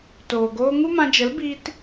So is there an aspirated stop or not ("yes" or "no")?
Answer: no